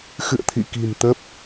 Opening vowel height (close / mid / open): close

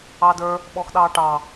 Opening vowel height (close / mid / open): open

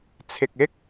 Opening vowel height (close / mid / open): close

